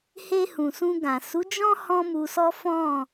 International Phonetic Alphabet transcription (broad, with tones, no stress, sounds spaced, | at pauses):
h e˧ h ũ˨ s ũ˧ ɡ ã˨ s u˨˦ d͡ʒ ɔ̃˦ h ɔ̃˦ m u˧ s ɔ˦ f ɔ̃˦˨